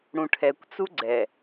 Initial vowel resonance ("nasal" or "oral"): nasal